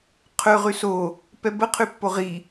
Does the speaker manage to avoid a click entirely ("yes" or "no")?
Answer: yes